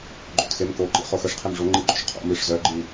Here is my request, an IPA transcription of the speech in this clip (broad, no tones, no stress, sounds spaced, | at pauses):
ɡ͡ǃ o̰ t x e m k o ǃ ḭ χ o x ɘ ʂ qʰ e m ʐ o ŋ͡ǃ i ɡ͡ǃ o̰ ʃ qʰ o̰ m i ʂ z œ ɡ͡ǃ i